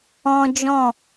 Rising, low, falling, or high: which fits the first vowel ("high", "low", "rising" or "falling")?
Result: high